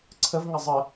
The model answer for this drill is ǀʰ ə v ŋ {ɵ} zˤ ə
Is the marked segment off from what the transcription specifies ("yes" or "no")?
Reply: yes